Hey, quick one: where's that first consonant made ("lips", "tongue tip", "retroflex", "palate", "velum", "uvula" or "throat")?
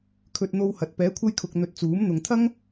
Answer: velum